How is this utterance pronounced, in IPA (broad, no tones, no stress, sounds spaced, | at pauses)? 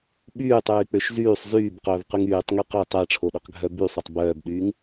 ɓ yː tˤ yː k͡p ø ʃ z yː sˤ z yː b q œː v q y ŋ yː tˤ ŋ y q ø tˤ æ ʈ͡ʂʰ o ɗ ɵ q ɡʱ œ b y sˤ o tˤ b œː b ɗ yː ŋ